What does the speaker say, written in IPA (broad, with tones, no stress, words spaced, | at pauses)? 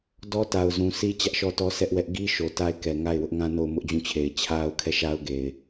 dɔ˦ta˨ʊ̯zũ˨sʰi˦ t͡ɕä˦ʔʃɔ˦˨tɔ˦ sɛ˦ʔwɛ˦ʔ ɡi˦ʃo˨ ta˦ɪ̯kɛ˨ ŋa˦˨ɪ̯wʊ˦ʔŋã˦ no˦˨ʊ̯mʊ˦ʔd͡ʑũ˦˨t͡ɕʰe˨ɪ̯ t͡ɕʰa˦ʊ̯kʰɛ˦˨ʃa˦ʊ̯ ɡe˨ɪ̯